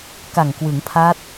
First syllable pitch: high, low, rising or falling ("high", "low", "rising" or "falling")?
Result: low